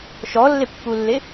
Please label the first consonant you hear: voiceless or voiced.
voiceless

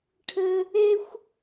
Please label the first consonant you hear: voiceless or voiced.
voiceless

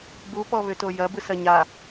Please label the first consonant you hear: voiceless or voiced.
voiced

